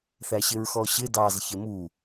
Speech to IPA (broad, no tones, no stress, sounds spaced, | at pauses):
θ æ ɕ ɪ ɹ x ɔ ɕ ɪ d ɑ z ç ɪ m u